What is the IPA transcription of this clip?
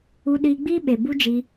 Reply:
u˧ ɗ iː˧ ɡ͡b iː˦ ɓ e˨ b u˦ d͡ʒ i˧

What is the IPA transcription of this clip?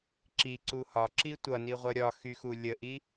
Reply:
ǁ i ǀ u h ɒ ǁ i tʷ ʌ n i ʁʷ ʌ ɾʲ ɒ x y x u lʲ ə ʔ i

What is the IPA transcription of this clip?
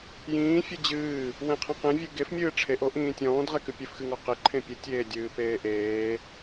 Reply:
j ĩː fʲ ɨ d͡ʑ ɨː | w ẽ qʰ ẽ q ẽ vʲ ɨ ɡ e f mʲ ɨː ʈ͡ʂʰ e ʔ o ʔ ĩː tʲ ɔ̃ː d ʁ e k ɨ pʲ ɨ f x ɨ ŋ ɔ q e ǃʰ ẽ pʲ ɨ tʲ eː dʲ ɨː p eː ʔ eː

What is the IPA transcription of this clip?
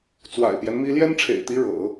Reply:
t͡s w a̰˨˩ ɪ̯ p j ɛ˦ n m i˥ l j ɛ˥ n ʈ͡ʂʰ ḛ˨˩ ɪ̯ t̪ i˧˥ ɻ ɤ̰˨˩˦

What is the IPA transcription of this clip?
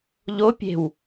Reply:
ʎ o pʲ e̤ w

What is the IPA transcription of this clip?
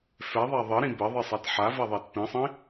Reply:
f ɛ ðˤ a ðˤ ɘ ɾ ĩ b ɘ ðˤ i sˤ a t ħ a v ɛ ðˤ ɛ t p ĩ sˤ ĩ

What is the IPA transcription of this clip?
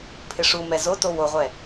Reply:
pʰ ɪ ʂ u m ɛ z o t o w o ʁʷ ɛ

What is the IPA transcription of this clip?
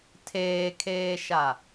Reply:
tʰ eː kʰ eː ʃ a

